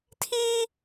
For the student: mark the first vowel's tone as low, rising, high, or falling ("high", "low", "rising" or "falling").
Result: high